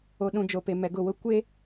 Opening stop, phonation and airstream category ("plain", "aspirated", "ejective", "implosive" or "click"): implosive